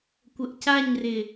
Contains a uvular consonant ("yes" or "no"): no